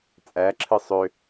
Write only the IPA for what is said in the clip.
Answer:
t͡sʼ æ ǁʰ ɯ sˤ ø

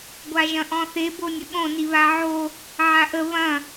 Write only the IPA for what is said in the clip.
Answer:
ɡʷ a ʒ ɐ̃ ʔ ɔ̃ θ e b o nʲ ə ɠ õ n i β a ʕ o | ʕ a ʔ ə β ɐ̃

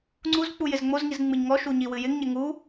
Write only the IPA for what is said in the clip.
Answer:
ŋ͡ǀ u z k͡p u j ɪ z ŋ͡m o z ŋ i z ŋ͡m ɨ ɲ ŋ ɔ ʃ u ɲ i w ɨ j ɪ ŋ ɲ ɪ ŋ u

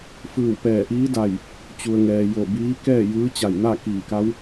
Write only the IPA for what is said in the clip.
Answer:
f ɯː˧˩ w p ɛː˧˩ ʔ iː˧˥ d a˧˩ j | t͡ɕ u˩ ə̯ ŋ ɛː˩ j o˧˩ b iː˧˥ k ɛː˥˨ j ɯː˧˥ t͡ɕ a˧˩ j n a˥˨ k iː˧˩ k a˧˥ w

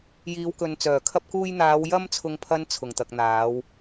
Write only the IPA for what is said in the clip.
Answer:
j iː˨˧ w k ɵ˨ n t͡s œː˨˩ kʰ ɐ˧ p̚ k uː˧ j n̪ aː˨˧ w j ɐ˧ m t͡sʰ ʊ˨ ŋ pʰ ɐ˨˧ n t͡sʰ ʊ˨˩ ŋ t̪ ɐ˨ k̚ n̪ aː˨˧ w

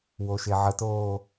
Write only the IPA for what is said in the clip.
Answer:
w o ʃ e ʕ ə t oː

